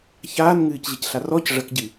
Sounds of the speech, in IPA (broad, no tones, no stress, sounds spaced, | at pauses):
ç aː n ŋ ɨː c ʑ ɨ c ɬ a r ɔ c ʐ ɐ k ɟ ɨ